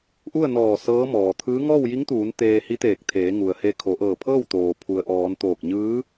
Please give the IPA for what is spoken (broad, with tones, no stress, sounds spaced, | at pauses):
ʔ u˥˨ ə̯ n ɔː˧˩ s ɤː˧˥ m ɔː˩ t̪ʰ ɯː˧˥ ŋ ɔː˥˨ w j i˧˥ ŋ t̪ uː˩˧ n t̪ eː˧ h i˧˥ t̪ eː˧˩ k̚ t̪ʰ eː˩˧ ŋ u˩ ə̯ h e˧ kʰ o˩˧ ʔ ɤː˧˩ pʰ ɤː˥˨ w t̪ oː˩ pʰ u˩ ə̯ ʔ ɔː˩˧ n t̪ oː˧˩ k̚ ɲ ɯː˧˥